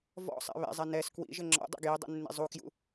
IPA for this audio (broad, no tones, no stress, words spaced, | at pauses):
vɔ̰sˤɛ̰ βɛ̰zˤɛ nɛs kwḭʒɘ ŋ͡ǁɔ̰ dˤɛ̰ɡjidˤṵ nːḭzˤukjṵ